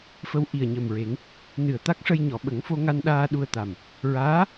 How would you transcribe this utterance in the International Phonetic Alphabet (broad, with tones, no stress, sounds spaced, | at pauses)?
f ə˧ w ʔ i˨˩ ə̯ ɲ ə˨˩ m ɹ e˨˩˦ ŋ | n ɨ˨˩ ə̯ t̪ a˦˥ k̚ ʂ ə˧ j ɲ ɔ˨˩˨ ɓ ə˨˩˦ ŋ f o˧ ŋ a˧ n ɗ aː˧ ɗ u˧ ə̯ t̪ a˨˩ m | ɹ aː˧˥